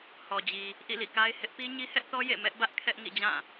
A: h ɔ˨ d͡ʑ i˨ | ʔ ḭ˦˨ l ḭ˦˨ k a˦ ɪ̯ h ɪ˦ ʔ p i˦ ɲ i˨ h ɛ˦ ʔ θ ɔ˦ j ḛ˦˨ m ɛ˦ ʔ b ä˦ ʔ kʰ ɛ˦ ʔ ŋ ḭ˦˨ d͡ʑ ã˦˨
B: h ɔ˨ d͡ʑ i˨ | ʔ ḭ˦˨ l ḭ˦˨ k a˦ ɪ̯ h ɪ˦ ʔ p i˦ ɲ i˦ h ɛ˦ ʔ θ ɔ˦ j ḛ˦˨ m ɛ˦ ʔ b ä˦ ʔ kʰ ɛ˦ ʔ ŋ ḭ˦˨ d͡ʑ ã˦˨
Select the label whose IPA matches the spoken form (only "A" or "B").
B